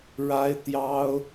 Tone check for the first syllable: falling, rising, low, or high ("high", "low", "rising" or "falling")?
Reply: high